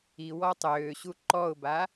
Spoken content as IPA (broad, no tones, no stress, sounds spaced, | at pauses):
i w ɔ tˤ øː ɕ u ǃ ɔ ʊ̯ b a